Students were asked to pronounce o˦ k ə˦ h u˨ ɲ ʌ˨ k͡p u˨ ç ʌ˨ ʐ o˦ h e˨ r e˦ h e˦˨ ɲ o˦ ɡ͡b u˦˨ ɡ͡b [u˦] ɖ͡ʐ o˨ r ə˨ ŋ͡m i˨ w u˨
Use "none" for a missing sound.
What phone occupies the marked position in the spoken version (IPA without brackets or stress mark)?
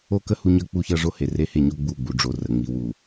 u˨